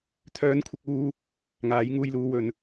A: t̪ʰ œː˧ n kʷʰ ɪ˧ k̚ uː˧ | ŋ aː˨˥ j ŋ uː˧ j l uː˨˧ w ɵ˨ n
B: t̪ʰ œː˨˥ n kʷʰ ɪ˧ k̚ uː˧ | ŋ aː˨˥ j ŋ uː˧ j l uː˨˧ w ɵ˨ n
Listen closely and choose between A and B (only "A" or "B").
A